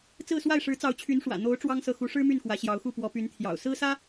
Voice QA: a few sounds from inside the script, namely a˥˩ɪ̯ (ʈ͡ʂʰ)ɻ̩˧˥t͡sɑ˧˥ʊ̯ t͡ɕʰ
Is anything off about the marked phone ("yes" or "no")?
yes